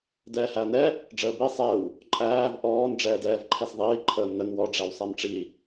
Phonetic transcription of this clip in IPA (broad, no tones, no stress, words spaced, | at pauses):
dɛːhæɐ̯nɛ | ɖ͡ʐəːbi sˤɛw | ǃʼæːv ʔɔːn ɖ͡ʐɛːdɛːvǃʰɛsðˤiː ǃʰəːmnən wɔ ɖ͡ʐæwsˤæmʈ͡ʂi